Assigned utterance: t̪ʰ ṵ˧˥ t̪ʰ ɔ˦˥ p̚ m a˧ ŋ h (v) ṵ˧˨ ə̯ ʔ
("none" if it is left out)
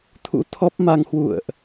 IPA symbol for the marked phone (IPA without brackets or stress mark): w